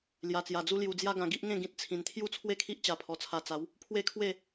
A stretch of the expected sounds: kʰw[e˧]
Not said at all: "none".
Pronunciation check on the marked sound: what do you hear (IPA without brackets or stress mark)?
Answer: e˥˧